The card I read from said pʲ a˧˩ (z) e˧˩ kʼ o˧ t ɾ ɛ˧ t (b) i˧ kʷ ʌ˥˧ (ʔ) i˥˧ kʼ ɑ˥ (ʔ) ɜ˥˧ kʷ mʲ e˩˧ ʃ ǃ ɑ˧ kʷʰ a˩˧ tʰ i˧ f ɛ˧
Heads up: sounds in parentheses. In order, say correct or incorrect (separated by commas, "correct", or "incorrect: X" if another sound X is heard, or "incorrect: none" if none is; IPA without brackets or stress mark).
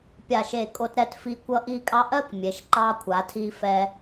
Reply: incorrect: ʃ, incorrect: f, correct, correct